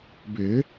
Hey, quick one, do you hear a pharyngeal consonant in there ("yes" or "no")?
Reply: no